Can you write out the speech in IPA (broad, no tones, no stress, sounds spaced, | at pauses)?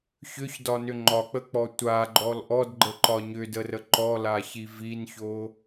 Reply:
ç ʏ ç d ɒ n ʏ ŋ͡ǃ ɒ k͡p ə k͡p ɔ tʷ a ɡ͡ǃ ɔ l ʔ ɔ d ɡ͡ǃ ə ǃ ɒ ɲ ʏ d ə r ə ǃ ɔ l a ç i v i n ç o